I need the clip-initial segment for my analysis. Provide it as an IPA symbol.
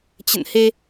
t͡ɕ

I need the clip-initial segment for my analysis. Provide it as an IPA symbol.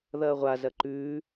ð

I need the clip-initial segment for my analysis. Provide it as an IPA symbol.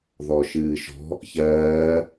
ð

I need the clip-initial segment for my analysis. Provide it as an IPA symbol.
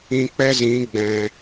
ĩ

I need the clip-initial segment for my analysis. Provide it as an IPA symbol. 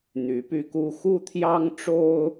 n̪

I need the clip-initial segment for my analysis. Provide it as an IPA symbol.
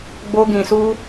ɡ͡b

